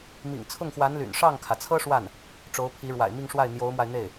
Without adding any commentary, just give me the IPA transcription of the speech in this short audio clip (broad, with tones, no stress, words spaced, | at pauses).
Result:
mḭ˨˩ŋt͡sʰʊ˥˩ŋxwa˧˥nly̰˨˩n ʂɑ˥˩ŋkʰä˩t͡sʰɤ˥ ʂwa˥˩n | ʈ͡ʂo˧˥ʊ̯pʰi˧˥ɻwa̰˨˩ɪ̯ mi˥˧ŋʂwa˥˩ɪ̯ n̪jo˧˥ʊ̯mwa˧ɪ̯n̪e˥˩ɪ̯